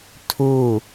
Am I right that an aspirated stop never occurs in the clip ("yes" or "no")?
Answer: no